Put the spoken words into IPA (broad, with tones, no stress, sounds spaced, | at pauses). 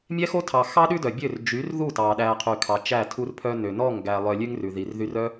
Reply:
mʲ ɛ˦ x o˦ tʰ ɑ˨ x ɑ˦ ɗ ʉ˦ d œ˨ bʲ ø˦˨ r d͡ʒ y˨˦ r ð u˦˨ t ɑ˨ ɗ æ˨ qʰ y˨ kʰ ɑ˨ t͡ʃ æ˦˨ tʰ u˧ r pʰ œ˧ n ø˨ n ɔ˦˨ ŋ ɡ æ˨ lˠ œ˨ lʲ ʉ˦ ŋ r ʉ˨ ð i˨ r ð y˧ r œ˦